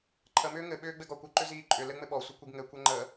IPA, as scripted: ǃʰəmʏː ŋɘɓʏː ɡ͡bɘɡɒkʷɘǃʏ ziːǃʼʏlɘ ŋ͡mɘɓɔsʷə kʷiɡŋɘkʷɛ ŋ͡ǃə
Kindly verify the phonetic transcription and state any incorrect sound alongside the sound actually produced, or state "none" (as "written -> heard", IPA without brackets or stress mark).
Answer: none